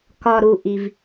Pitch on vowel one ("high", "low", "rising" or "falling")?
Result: low